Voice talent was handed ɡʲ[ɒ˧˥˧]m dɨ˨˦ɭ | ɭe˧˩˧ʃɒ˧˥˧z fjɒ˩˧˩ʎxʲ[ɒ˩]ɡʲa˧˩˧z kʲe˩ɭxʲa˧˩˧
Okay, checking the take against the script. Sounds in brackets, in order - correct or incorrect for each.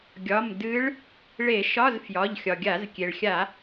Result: incorrect: ɒ˩˧˩, correct

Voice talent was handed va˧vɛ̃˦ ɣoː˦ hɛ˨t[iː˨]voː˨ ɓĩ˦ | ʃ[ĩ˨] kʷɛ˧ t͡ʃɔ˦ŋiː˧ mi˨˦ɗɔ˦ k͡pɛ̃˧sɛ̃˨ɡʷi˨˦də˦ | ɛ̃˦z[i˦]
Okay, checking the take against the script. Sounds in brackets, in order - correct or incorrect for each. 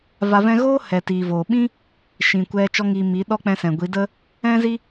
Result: correct, correct, correct

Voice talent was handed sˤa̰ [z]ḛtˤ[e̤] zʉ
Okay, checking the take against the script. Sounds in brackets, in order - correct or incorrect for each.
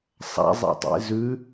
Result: incorrect: zˤ, incorrect: ḛ

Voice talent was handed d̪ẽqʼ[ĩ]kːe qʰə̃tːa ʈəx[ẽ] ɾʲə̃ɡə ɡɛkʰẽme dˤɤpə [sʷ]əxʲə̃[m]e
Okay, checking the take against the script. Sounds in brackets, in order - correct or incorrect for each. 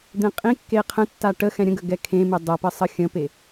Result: correct, incorrect: ɛ̃, incorrect: sˤ, incorrect: p

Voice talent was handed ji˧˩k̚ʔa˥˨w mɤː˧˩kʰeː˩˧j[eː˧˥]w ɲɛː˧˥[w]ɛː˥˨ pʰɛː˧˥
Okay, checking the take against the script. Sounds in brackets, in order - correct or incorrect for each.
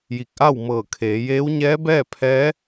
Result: correct, incorrect: b

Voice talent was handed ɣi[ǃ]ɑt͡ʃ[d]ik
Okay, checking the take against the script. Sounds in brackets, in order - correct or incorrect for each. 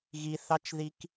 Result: incorrect: θ, incorrect: ð

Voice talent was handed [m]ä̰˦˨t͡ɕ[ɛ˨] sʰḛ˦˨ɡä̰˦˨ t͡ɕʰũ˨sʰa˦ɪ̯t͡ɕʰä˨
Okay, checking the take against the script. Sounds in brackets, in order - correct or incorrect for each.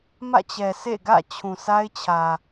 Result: correct, correct

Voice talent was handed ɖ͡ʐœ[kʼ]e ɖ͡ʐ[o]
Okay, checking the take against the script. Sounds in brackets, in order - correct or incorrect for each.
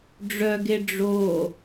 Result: incorrect: ɡ, correct

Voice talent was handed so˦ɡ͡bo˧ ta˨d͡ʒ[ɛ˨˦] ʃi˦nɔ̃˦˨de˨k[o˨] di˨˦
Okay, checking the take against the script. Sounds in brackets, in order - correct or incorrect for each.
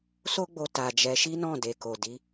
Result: correct, correct

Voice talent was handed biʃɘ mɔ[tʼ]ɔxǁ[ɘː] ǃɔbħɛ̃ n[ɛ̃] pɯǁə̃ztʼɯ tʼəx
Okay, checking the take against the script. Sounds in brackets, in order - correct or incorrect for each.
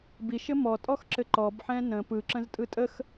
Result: correct, incorrect: ɘ, incorrect: ə̃

